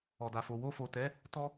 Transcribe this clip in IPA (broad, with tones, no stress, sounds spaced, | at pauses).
ɔ˨ d a˨ f o˨ w o˧ f o˨ t ɛ˨˦ | t ɔ˧